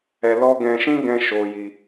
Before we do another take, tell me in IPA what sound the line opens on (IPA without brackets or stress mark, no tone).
ɛ